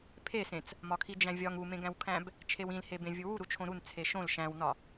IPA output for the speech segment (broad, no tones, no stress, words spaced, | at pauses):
pʰesẽt͡s | mɒkʰid͡ʒæ̃vʲɒŋ umẽɡæ̃wkʰæ̃b | t͡ʃʰewĩlhebẽ vʲuwu ɾut͡ʃʰõɾun t͡sʰeʃõl ʃæ̃wnɒ